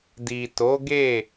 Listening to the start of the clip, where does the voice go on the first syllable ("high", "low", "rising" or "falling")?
low